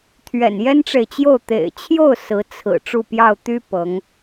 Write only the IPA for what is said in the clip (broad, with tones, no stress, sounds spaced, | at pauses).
t̪ʰ ɥ ɛ̰˨˩ n j ɛ˥ n ʈ͡ʂ e˨ ɪ̯ t͡ɕ j o˥˩ ʊ̯ t̪ ḛ˨˩ ɪ̯ t͡ɕʰ j o˥˩ ʊ̯ s ɹ̩˧˥ t͡sʰ ɹ̩˨˩ ʈ͡ʂ u˥˧ p j ɑ˥˩ ʊ̯ t̪ y˥ p ɤ˧˥ ŋ